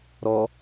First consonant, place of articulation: alveolar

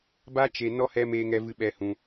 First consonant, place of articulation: labial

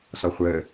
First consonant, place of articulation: alveolar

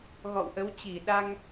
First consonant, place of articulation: velar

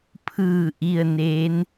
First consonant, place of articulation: labial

